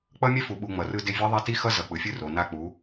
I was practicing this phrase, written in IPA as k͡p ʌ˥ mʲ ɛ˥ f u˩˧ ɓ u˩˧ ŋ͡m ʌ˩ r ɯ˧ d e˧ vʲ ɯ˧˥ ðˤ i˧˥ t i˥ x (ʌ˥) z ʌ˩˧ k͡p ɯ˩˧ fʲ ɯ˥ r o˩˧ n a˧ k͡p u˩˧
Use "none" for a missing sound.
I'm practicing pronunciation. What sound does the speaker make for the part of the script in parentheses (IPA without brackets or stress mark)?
ʌ˥